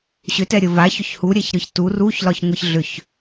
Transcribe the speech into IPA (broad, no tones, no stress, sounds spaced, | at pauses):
ɕ ʏ t ɛ ɾʲ ə v a ç ʏ ç h u ɾʲ ɛ ç ɾ ɯ ç t u r u ç l ɒ ç ŋʷ ɯ ç ɮ ʏ ç